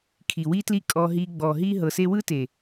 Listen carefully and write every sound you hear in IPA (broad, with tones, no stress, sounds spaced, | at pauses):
kʰ i˨ w i˦ t l i˦ kʼ ɔ˧ ɦ i˧ ɡ͡b ɔ˨ ɦ i˦ ɦ ɤ˨ s e˧ w ɯ˦ t e˨